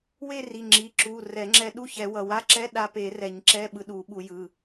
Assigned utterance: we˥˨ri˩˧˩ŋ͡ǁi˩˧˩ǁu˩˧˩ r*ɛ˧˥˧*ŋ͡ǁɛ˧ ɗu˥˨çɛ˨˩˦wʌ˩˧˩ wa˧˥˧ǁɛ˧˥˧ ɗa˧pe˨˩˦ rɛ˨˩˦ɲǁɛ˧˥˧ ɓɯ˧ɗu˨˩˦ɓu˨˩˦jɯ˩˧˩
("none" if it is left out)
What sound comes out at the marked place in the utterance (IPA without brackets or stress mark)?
ɛ˨˩˦